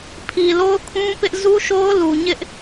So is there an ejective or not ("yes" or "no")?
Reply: no